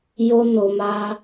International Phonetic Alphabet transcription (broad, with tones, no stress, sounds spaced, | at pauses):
j o˧ n o˨ m a˧